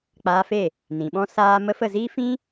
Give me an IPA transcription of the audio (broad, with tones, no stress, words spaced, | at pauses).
k͡paː˧fe˦˨ | nĩ˨ɓɔ̃˦ saː˦mə˦ fə˦˨ziː˦fĩ˦